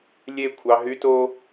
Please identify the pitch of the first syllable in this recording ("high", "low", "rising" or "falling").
falling